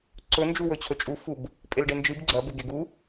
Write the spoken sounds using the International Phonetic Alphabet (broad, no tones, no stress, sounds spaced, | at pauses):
ǀ ɵ n d͡ʒ u w ɵ t͡ɕʰ ɵ t͡ʃʼ u f u b | pʼ e l ɖ e n d͡ʒ ɨ b ɡ͡ǀ ɐ b e ɡ e ɡ u